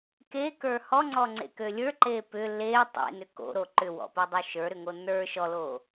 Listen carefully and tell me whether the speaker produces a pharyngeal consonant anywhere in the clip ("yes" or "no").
no